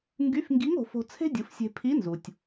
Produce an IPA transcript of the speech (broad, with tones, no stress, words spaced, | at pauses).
ŋɡy˧˥f ŋɡi˧˥ŋ o̤˩˧fo̤˧ t͡sʰe̤˥dʲɯ˩˧fsʲe̤˧ pʰi˧˥nzu˩tʲ